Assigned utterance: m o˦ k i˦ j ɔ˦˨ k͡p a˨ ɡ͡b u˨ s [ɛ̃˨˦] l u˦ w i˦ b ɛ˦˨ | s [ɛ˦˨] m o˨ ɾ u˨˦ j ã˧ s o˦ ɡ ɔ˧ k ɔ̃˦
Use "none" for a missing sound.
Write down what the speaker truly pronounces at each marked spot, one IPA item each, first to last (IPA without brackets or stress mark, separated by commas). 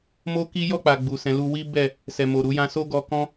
ɛ̃˨˦, ɛ˨